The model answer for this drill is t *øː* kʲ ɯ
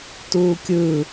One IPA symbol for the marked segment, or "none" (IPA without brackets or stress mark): uː